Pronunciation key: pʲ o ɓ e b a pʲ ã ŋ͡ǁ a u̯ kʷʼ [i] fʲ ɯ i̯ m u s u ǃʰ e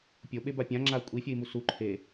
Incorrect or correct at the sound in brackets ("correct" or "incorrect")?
correct